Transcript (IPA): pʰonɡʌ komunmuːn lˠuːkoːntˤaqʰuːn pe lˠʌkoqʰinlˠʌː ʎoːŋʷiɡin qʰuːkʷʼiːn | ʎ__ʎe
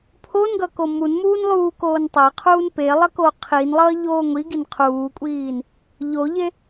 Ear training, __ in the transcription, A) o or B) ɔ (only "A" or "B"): A